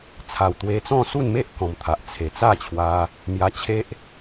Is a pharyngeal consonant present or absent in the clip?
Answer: absent